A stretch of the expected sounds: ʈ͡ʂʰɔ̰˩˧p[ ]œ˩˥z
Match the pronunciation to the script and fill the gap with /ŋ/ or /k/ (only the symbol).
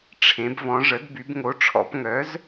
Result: ŋ